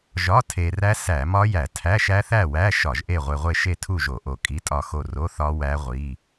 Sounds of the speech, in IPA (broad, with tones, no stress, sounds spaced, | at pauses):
ʒ ɒ˧˥˧ tʰ e˧ r æ˦˥ s æ˧˩˧ m ɒ˦˥ j æ˧˩˧ tʰ æ˧˥˧ ʃ æ˦˥ θ æ˥˨ w æ˧˥˧ ʃ ɒ˧˩˧ ʒ ʔ e˥˨ ʁʷ e˧ ʁʷ e˥˨ ʃ e˥˨ tʰ u˥˨ ʒ o˧˩˧ ʔ o˧˩ kʼ i˧˥˧ tʼ ɒ˥˨ x o˥˨ r o˧˥˧ θ ɒ˦˥ w æ˦˥ ʁʷ i˧˥˧